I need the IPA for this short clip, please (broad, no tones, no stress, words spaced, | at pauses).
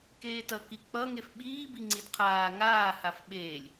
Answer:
keːtʌ kik͡pʌ ŋefɓiː biŋ͡ǀidqʰaː ŋaːhaf ɓeːlʲ